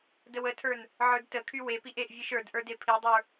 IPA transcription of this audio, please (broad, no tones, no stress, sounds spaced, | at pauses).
d ə w ə tʰ ə˞ n | ʕ ə˞ d t ə kʰ y w e p i ʔ e ʔ vʲ e ʃ ə˞ d ʔ ə˞ d e pʰ i dˤ ə˞